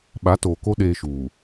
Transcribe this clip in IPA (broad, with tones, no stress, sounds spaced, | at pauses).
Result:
ɓ a˨˦ t oː˨ k o˦ ɗ eː˦ ʃ uː˨